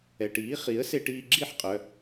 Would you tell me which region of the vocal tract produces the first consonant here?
retroflex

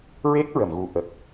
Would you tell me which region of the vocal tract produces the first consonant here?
tongue tip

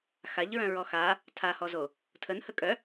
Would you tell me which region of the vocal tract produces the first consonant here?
velum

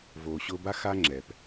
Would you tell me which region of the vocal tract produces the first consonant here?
lips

